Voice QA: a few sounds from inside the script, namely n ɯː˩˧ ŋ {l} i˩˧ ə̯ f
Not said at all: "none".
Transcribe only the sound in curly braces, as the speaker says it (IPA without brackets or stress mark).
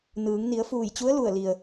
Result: n